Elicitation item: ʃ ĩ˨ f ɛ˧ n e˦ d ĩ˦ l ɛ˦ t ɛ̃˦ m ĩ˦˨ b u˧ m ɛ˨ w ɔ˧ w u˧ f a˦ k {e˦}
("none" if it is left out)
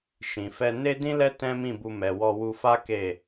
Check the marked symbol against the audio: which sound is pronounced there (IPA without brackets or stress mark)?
e˦˨